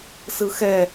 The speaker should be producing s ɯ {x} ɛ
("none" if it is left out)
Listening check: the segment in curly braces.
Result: x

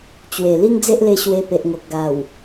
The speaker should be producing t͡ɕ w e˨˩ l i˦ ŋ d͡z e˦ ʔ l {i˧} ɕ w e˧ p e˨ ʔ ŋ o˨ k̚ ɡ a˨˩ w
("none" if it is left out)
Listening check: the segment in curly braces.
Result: e˧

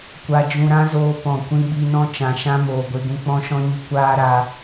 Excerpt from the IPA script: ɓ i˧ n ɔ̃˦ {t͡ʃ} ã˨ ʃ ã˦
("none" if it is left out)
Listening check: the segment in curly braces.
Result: t͡ʃ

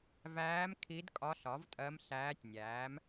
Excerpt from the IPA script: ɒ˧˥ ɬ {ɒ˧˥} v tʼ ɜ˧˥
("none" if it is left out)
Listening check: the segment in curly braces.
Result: ɒ˩˥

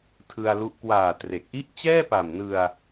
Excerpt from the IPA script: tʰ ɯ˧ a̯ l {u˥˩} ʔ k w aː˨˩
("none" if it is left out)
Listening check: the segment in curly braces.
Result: u˦˥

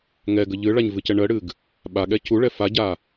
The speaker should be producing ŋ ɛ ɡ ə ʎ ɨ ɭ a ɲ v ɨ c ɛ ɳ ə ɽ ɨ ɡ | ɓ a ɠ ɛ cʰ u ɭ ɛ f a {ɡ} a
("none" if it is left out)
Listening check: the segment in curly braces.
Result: ɟ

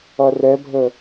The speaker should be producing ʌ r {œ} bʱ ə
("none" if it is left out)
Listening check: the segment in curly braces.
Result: ɛ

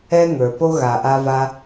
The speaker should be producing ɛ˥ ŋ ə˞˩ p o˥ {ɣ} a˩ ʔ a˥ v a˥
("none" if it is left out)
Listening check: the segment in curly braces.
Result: ɣ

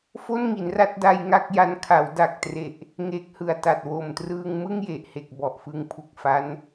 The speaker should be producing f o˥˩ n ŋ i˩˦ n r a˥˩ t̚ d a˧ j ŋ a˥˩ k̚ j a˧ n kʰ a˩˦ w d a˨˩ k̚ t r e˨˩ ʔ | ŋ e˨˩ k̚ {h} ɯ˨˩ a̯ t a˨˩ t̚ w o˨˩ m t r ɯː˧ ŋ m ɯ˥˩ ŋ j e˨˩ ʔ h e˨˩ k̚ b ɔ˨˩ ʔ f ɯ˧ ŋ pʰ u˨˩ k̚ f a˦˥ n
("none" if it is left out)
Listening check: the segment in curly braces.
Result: h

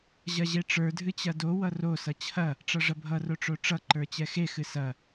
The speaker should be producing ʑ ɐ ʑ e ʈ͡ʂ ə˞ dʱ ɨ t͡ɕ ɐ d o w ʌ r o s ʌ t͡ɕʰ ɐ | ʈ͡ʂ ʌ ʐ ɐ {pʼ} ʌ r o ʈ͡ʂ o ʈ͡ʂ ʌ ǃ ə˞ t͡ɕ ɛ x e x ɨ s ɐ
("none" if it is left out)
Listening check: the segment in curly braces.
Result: bʱ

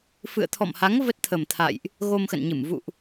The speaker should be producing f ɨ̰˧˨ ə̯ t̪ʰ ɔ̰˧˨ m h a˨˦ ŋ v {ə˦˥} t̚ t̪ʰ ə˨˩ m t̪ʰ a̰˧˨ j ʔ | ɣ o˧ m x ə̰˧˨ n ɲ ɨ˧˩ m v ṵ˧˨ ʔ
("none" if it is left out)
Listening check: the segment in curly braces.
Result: ə˦˥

